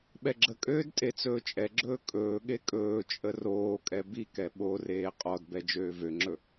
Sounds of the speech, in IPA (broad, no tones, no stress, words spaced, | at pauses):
ɓɛɡ͡ǁəkʼøːd tʼet͡sɵːt͡ʃʼɛɡ͡ǁɵː kʼɵːɠe kʼɵːt͡ʃʼə roːkʼɛ bikɛ ɓoreː qʼɔdbɛ d͡ʒøːvøŋ͡ǁɵ